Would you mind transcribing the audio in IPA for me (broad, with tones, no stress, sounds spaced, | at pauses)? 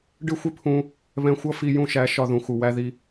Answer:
ɖ ɪ˦ xʷ ɪ˦ pʰ ũ˧ | β ɛ̃˧ xʷ ʌ˦ f i˧ j ũ˧ ʃ æ˨˦ ʃ ɒ˧ ð ũ˨ x u˨ w æ˧ ð i˧